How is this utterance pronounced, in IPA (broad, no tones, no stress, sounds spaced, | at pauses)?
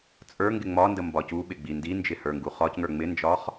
t͡sʼ ə˞ ŋ ɡ ɪ ŋ͡m ɒ n d ə m b ɒ c u ɓ ɪ ɡ͡b i n d i n d͡ʒ ɪ h ə˞ ŋ ɡ u χ ɒ c ŋ ə˞ ŋ͡m ɪ n d͡ʒ ɒ χ